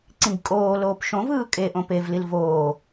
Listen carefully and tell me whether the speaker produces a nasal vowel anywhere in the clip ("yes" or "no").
yes